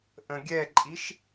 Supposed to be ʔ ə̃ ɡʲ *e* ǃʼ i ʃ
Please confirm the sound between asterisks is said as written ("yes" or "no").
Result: no